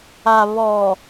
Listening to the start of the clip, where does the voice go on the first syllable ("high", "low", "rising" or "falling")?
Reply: low